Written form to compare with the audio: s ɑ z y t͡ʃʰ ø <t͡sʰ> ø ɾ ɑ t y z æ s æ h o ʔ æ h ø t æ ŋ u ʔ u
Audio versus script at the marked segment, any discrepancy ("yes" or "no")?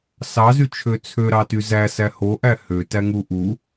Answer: no